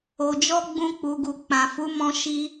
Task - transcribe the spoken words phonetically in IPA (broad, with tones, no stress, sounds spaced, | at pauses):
o˨ d͡ʒ ɔ˧ ɡ͡b ũ˧ k͡p u˨ ɡ u˨ k͡p ã˨ f u˨˦ m ɔ̃˧ ʃ i˧